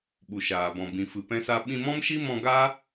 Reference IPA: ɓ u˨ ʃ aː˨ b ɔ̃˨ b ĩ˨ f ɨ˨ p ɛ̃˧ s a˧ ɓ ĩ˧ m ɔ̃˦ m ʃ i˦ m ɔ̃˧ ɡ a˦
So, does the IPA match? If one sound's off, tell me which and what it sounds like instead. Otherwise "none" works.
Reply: none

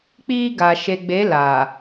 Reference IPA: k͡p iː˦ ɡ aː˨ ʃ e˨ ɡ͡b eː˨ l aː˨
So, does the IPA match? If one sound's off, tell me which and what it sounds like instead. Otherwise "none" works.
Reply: eː˨ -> eː˨˦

